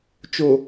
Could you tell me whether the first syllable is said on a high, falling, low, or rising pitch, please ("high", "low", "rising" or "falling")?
low